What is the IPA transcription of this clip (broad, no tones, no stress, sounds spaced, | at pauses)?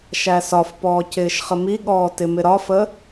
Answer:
ʃ æ s ɒ f p ɔː c ɪː ʃ χ ə m i ɠ ɔː t ɪ m ɪ ɾ ɒ f ə